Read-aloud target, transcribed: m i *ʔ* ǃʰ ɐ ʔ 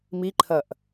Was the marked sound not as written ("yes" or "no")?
yes